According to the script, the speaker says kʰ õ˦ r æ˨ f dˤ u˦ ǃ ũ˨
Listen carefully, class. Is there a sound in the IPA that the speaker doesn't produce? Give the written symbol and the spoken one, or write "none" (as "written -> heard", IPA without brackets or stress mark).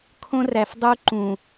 none